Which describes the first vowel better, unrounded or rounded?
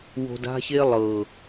rounded